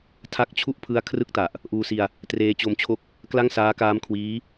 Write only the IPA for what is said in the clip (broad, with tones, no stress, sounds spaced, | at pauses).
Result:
tʰ a˦˥ k̚ t͡ɕʰ u˥˩ ʔ pʰ ɯ˦˥ a̯ kʰ r ɯ˥˩ k̚ t a˨˩ ʔ | ʔ uː˧ s i˧ a̯ | t r eː˧ t͡ɕ o˧ m t͡ɕʰ o˦˥ k̚ | k l a˥˩ ŋ s aː˦˥ k aː˦˥ m kʰ w iː˦˥